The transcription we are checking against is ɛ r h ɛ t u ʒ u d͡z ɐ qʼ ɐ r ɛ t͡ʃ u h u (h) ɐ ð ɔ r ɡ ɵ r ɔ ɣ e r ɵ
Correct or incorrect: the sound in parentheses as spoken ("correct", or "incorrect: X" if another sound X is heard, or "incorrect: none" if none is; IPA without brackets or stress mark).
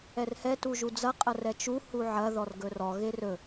incorrect: ʕ